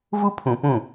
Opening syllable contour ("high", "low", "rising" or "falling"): high